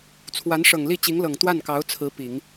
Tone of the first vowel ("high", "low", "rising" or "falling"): rising